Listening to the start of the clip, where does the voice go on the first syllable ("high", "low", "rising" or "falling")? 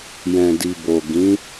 low